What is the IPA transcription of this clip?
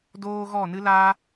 d oː˦ ɣ ɔ˦˨ n ɨ˦ l a˦

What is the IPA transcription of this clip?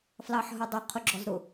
f l ɑ ħ ɦ ʊ dˤ ə qʰ ʊ ɡ͡ǁ ɔ z ɾ ʊ

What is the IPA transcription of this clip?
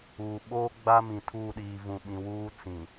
uː˨ ɓ oː˦ ɡ͡b a˦ m ĩ˨ tʰ uː˦˨ ɗ iː˨ v ũ˨ ɓ ĩ˨ w uː˦ t͡s ĩ˨

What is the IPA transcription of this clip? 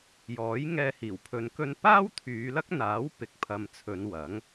j ɔː˨˥ j ŋ ɛː˧ h iː˨˩ w pʰ ɵ˨ n k ɵ˧ n p aː˥ w t̪ʰ yː˨˧ l ɐ˥ k̚ n̪ aː˨˥ w p ɪ˨˥ k̚ pʰ ɐ˨ m t͡sʰ ɵ˨˧ n w ɐ˨˥ ŋ

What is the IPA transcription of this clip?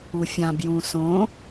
u fʲ ã b j ũ s õ

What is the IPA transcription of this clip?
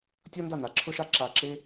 tʲ ɔ˥ n d a˥˩ n a˩ ǁʰ ʊ˥ ʃ a˥ ǁ a˧˩ ǁ e˥

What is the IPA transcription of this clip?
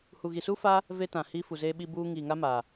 h u˨ ɣ i˨ s u˦ f a˦ | v e˦ t ã˨ h i˦ f u˨ z e˦ ɓ i˦ b uː˦ ŋ i˨ ŋ a˦ m a˨

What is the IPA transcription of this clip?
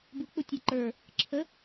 b u k͡p u tʲ u ǃ ə˞ | ǁʰ ə

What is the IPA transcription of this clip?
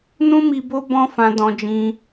n ũ˦ m i˧ b o˦ b ɔ̃˦ f ã˧ d ɔ̃˧ d͡ʒ ĩ˧

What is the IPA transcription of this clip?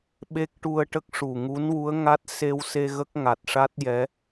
ɓ e˦˥ k̚ ʈ u˧ ə̯ ʈ ə˦˥ k̚ ʂ u˨˩ ŋ u˧˥ n w u˧˥ ə̯ ŋ a˦˥ t̚ s e˧ w s e˧ ɣ ə˦˥ k̚ ŋ a˨˩ t̚ ʂ a˦˥ t̚ j ɛ˧˥

